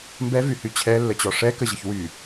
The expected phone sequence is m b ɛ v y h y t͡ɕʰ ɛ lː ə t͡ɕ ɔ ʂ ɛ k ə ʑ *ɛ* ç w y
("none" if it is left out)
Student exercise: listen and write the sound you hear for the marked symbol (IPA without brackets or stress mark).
ə